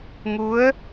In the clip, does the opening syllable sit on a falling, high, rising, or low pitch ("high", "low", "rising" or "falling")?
rising